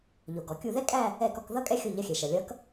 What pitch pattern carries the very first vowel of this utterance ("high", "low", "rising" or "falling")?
low